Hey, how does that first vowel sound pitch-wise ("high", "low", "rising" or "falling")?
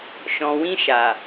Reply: low